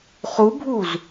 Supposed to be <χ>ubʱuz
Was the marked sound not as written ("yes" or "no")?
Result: no